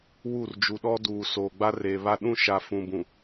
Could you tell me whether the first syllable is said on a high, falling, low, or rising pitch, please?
falling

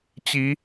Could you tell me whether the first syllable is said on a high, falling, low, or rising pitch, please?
rising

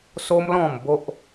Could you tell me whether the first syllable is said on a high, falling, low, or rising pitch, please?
high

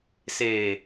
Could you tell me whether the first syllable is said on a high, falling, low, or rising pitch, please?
low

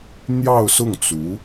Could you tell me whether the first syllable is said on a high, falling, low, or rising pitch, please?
falling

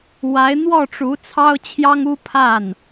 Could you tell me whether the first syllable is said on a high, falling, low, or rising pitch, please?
rising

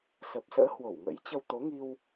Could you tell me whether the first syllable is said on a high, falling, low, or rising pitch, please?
low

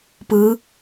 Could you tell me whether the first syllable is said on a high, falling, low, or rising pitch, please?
rising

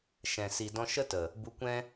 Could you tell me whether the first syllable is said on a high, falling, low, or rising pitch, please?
low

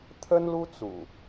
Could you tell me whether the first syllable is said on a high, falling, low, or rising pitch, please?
high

